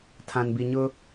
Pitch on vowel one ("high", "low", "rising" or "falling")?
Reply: low